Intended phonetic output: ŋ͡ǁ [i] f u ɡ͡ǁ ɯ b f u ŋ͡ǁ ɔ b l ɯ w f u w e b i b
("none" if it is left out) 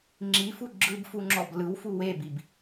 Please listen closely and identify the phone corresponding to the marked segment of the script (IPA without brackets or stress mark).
i